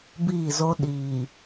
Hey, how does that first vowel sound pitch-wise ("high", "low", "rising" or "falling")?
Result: falling